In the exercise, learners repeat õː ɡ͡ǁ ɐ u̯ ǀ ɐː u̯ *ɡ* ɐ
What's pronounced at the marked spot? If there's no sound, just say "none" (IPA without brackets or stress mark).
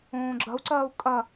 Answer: kʼ